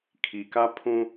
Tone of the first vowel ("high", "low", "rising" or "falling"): low